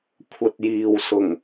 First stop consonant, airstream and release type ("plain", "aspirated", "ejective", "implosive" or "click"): aspirated